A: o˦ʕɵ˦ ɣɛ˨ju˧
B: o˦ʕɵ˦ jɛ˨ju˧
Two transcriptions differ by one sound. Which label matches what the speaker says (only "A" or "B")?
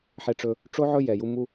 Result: B